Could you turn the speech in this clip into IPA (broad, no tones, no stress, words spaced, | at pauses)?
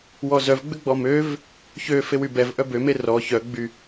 wɔzœv ɡ͡bʏɡ͡bɔmøv | çøfew ybɛvʔœ bøme rɔ çœɡ͡by